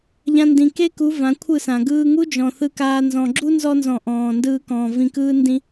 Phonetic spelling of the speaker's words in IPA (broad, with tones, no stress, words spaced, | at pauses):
ʎã˧ndĩ˨ke˦ku˨˦ vã˨˦kʷʰɯ˦˨sã˨ ɡɯː˧ŋu˦d͡ʒɔ̃˨ θɯ˧kaː˧ nzɔ̃˨ɡ͡ǁu˦ nzɔ˧nzɔ̃˨ ʔɔ̃ː˨ndɯː˧kɔ̃ː˨ vĩ˨kɯː˧ndĩ˧